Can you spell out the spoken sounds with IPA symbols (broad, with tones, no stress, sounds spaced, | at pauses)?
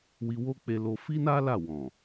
w i˧ w o˦ k͡p e˧ l o˧ f i˦ n a˦ l a˦˨ w ɔ̃˨